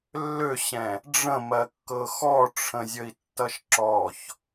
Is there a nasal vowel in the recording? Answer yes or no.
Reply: yes